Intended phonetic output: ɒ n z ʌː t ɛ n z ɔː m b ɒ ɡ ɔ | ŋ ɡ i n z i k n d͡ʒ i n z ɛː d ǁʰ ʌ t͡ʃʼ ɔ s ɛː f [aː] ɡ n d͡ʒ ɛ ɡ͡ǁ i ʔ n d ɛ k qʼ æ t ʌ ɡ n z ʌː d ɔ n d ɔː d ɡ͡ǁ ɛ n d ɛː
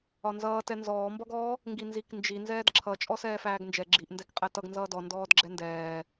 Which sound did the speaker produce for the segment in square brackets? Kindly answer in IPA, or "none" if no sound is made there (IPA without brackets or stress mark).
æː